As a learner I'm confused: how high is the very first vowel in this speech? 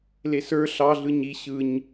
mid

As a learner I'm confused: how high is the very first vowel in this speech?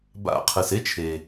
low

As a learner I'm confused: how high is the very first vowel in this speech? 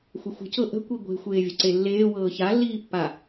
mid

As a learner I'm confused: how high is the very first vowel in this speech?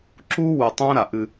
high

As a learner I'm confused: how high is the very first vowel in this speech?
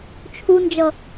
high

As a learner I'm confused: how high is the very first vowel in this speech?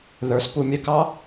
mid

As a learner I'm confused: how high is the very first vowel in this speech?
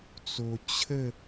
mid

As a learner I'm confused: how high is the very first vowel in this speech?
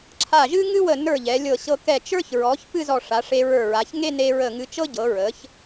low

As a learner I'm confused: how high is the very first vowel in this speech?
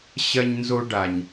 low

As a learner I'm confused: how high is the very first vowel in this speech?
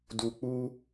high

